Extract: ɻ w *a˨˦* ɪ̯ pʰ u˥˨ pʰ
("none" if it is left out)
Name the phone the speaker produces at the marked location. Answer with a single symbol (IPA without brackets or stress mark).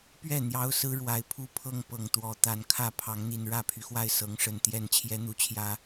a˨˦